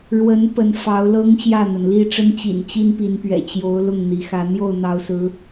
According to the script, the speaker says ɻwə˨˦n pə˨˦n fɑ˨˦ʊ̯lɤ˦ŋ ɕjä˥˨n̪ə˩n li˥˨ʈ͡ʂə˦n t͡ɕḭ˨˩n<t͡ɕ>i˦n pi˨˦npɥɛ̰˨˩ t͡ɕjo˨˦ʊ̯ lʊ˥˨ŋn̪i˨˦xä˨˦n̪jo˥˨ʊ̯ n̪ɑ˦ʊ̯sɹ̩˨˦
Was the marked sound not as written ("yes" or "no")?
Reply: no